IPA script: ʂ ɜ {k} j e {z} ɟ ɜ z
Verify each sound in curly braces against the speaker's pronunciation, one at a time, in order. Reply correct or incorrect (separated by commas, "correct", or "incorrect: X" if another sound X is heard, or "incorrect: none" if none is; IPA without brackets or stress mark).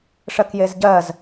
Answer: correct, correct